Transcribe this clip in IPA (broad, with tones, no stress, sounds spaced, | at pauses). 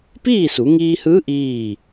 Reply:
p iː˥˨ s u˩˧ ŋ iː˧ h ɯː˧˥ ʔ iː˥˨